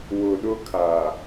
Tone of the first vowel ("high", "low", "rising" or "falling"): low